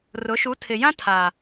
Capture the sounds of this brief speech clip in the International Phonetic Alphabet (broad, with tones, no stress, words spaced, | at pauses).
rʊ˨˦ ʃu˨˦tʰɪ˨ jã˦tʰa˨